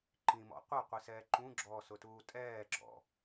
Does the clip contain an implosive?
no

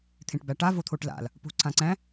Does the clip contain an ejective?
no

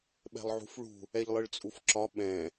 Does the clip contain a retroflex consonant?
yes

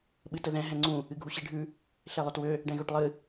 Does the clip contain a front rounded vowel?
yes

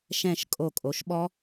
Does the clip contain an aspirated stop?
no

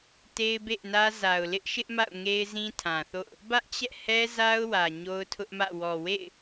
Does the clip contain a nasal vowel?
yes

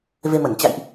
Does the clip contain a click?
no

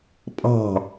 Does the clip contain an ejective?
yes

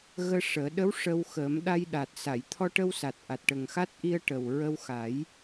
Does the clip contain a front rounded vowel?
no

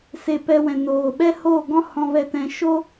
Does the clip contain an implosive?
yes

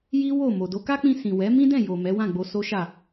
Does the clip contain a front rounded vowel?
no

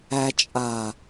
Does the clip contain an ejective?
yes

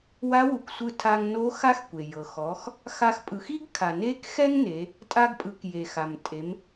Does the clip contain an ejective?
yes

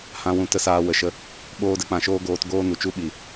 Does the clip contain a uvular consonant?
no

